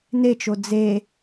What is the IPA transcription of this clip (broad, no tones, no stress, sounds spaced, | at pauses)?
n e t͡ʃ o d͡z e